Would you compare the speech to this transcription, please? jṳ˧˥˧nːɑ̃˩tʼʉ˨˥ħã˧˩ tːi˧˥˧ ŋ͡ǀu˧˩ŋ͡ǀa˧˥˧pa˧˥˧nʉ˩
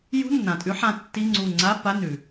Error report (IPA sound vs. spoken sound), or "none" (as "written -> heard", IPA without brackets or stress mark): ɑ̃˩ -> ã˩